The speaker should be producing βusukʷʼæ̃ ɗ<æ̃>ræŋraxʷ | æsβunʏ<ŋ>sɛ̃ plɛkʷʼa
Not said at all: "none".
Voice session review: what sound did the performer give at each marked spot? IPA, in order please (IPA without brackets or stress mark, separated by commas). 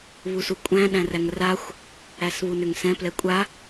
æ̃, ŋ